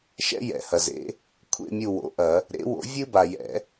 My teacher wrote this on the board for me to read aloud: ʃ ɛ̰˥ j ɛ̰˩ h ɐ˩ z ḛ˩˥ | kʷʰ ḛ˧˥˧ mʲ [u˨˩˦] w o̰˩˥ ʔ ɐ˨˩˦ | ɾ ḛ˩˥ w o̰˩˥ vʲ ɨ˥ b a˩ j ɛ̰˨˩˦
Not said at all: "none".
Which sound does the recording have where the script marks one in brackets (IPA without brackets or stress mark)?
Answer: u˦˨